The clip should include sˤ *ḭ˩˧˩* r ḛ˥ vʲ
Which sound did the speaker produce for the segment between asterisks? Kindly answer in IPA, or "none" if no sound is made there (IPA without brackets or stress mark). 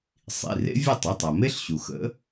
ḭ˩˧˩